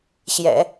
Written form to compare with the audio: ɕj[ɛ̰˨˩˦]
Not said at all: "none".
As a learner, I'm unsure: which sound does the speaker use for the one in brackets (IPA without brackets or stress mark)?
ɛ̰˨˩˦